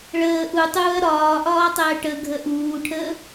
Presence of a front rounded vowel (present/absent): absent